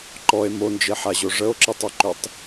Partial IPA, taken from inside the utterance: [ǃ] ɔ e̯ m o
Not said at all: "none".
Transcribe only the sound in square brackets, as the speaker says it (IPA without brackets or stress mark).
ǃ